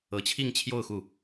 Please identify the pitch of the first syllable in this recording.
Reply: low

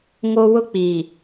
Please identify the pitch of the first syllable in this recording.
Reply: high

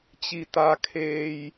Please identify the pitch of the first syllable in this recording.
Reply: low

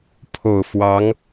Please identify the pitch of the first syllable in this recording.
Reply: low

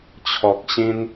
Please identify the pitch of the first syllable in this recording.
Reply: low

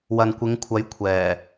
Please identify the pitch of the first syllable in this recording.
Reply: low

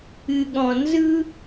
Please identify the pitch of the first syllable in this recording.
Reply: low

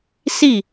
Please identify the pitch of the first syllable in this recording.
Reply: falling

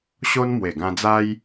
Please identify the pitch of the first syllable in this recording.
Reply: high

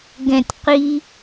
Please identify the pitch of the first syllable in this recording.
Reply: low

